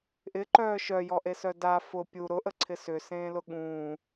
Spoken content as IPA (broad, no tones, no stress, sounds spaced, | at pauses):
ʔ ɪ ǃ œː ʃ œ j ɔ ʔ e s œ d a f ʊ pʲ u ɾ ʊ ʔ ə ǀʰ ɪ s ʏ s ẽː l ʊ ɠ ũː